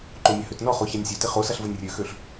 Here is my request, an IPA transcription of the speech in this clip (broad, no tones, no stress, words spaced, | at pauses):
ǃomʲəhøtnɔ χoçanʲsʲøtɪ χosaɬvənʲ rʲøxøɬ